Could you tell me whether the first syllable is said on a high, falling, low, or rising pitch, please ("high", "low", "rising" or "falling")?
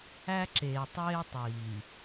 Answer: high